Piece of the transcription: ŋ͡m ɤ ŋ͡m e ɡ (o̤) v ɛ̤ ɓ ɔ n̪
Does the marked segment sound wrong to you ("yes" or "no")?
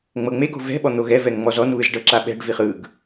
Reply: no